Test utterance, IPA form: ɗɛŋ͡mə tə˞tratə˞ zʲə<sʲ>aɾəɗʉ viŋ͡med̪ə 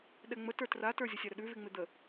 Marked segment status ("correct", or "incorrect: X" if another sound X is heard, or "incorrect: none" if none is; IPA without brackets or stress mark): correct